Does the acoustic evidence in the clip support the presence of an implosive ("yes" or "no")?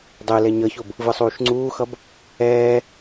no